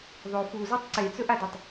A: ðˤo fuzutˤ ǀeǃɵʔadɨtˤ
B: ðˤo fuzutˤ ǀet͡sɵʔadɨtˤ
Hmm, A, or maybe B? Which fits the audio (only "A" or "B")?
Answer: B